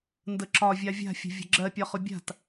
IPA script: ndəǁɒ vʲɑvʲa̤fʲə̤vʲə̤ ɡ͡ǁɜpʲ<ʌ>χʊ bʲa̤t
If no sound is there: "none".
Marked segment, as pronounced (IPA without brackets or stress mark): ɒ